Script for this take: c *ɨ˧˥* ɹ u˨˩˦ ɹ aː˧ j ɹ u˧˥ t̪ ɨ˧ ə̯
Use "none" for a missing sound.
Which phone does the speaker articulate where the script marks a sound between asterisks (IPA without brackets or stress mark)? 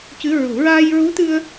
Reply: ɨ˧˥